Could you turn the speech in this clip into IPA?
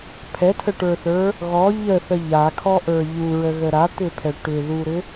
pʰ ɛ tʰ ə ʈ ə˞ θ ə˞ | ɣ ɔ ʎ ə θ ə ʎ a kʰ ɔ ʔ ə˞ ʎ u ɹ ə ɣ ə ɾ a t̪ ʏ pʰ ɛ ʈ ʏ ð u ɾ ʏ

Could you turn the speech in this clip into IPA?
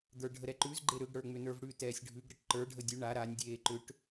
d̪ ə˞ ɖʱ ə ɾ ɛ ǃ ʉ z ɡ͡ǃ e ɾ ʏ ɡ ɽ ə˞ ŋ͡m ʏ n ə˞ v ɽ ʉ t ɛː sʲ ɖʱ ʉ ɡ ɾ ɘ ʈ ǃ ə˞ ɖʱ ə dʲ ʉ ɳ a ɾ a nʲ dʲ eː ǃ ʏ ʈ

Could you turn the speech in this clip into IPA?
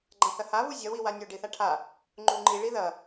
ɡ͡ǃ ã θ ɐ h a β u zʲ ɐ w i w a nʲ o ɖ i θ a ʈʰ a | ŋ͡ǃ u ŋ͡ǃ i ɭ i ð ɐ

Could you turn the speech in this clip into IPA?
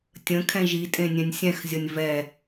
tʲ ə̃ kʰ ɛ̃ ʒ i tʼ ẽ nʲ ɛ̃ nʲ sʲ ɛ̃ x zʲ ʌ nʲ v ɛ

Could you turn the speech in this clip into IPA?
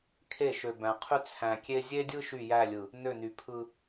kʰ e˦˨ ʃ ø˨ b æ̃˨ qʰ y˦ t͡sʰ æ̃˨ kʲ e˦ zʲ e˦ dʲ ɯ˦ ʃ y˦˨ j æ˦˨ lʲ ɯ˨ | n ø˦˨ n y˨ pʰ ɯ˦

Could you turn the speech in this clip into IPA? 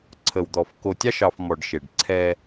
ǀʰ ə˨ w d̪ ɔ˨ f k o˨ tʲ ɑ˦ ʃ ɑ˨ f m ɔ˨ ɖ ʃ e˨ ɖ ǀʰ ɛ˦

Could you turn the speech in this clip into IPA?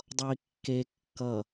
dˤ ʌ i̯ kː e kː ʌ

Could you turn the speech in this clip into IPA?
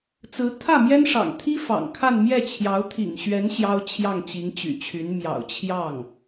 t͡s ɹ̩˧˥ t̪ʰ ä˥˩ m j ɛ˥ n ʂ ɑ̰˨˩ ŋ t̪ʰ i˥ f ɑ̰˨˩ ŋ kʰ a˥˧ n m j ɛ˥˩ t͡ɕʰ j ɑ˧˥ ʊ̯ t̪ʰ ḭ˨˩ ŋ ɕ ɥ ɛ˧˥ n ɕ j ɑ˥ ʊ̯ t͡ɕʰ j ɑ˥˩ ŋ t͡ɕ i˧˥ ŋ t͡ɕ y̰˨˩ t͡ɕʰ y˧˥ n m j ɑ̰˨˩ ʊ̯ t͡ɕʰ j ɑ˥˩ ŋ

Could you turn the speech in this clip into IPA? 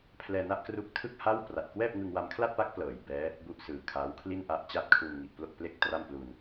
pʰ l ɛː˧ n a˦˥ ʔ k r u˦˥ k̚ tʰ ɯ˥˩ k̚ h a˥˩ w p r a˨˩ t̚ k w ɛː˥˩ p̚ ŋ ɯ˧ ŋ w a˧ m kʰ l a˥˩ t̚ p a˦˥ k̚ p l ɤː˩˦ j b ɛː˦˥ | b u˥˩ ʔ s ɯː˨˩ kʰ aː˦˥ w kʰ l i˥˩ n ʔ a˦˥ ʔ t͡ɕ a˥˩ t̚ kʰ u˧ n ŋ i˨˩ ʔ p l o˥˩ k̚ p l e˥˩ k̚ t r a˥˩ m p l u˧ n

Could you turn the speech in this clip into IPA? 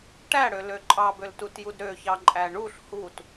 ʈ æ ɽ ø l ø ǃʼ ɑ b ø l t u t j u d ɾ ø ç ɑ ǃʼ æ ɳ u ɬ h u t

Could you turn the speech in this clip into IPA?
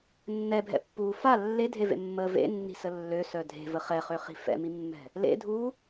nː ɛ bʱ ɛ̰ pː uː f a lː e dʱ e v ḛ mː əː v ḛ nː i̤ s ə lː ø s œ dʱ e̤ v ə χ ɛ χ ø χ i̤ f ɛ̰ m i mː ɛ̤ | l ḛ dʱ uː

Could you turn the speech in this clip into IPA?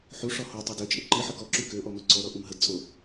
ħ u ʂ ɔ h o tˤ œ d ø t͡ʃʼ ə ǃ i ħ ə k ɔ ǁ y k ø ʔ ɔ m œ ǀ ɔ ɾ ɔ ʔ u m ɦ ə d t͡sʼ o

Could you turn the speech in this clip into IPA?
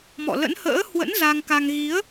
m ɔ̰˧˨ l ə̰˧˥ n h ə̰ː˧˥ h w ə̰˧˥ n z a˧ ŋ k a˧ ŋ ɣ i˨˦ ə̯

